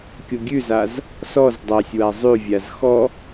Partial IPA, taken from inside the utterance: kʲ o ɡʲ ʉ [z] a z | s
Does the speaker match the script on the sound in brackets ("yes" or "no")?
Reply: yes